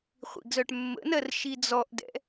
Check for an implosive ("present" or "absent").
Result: absent